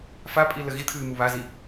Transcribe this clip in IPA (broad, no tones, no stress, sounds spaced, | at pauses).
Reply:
f a pʼ i l ə ɣ i t̪ʰ ɨː m u β a z i